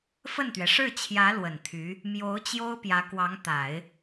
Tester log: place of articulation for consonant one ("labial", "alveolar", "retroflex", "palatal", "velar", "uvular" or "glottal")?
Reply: labial